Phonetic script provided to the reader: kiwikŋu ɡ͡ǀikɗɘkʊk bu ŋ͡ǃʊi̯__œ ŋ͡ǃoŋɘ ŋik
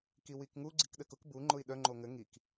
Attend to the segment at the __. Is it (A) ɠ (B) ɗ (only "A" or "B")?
B